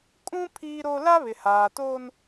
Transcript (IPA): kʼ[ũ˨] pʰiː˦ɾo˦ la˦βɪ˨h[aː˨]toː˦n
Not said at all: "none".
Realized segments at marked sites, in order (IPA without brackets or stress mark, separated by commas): ũ˦, aː˨